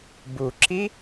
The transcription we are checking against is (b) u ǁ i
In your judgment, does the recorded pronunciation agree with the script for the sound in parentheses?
yes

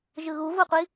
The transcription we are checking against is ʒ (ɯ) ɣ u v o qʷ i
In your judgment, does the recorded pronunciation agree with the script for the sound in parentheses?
yes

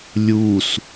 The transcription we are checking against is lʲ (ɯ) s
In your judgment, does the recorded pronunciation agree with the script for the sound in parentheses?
no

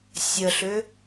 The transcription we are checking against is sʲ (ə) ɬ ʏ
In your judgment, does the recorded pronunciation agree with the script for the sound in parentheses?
yes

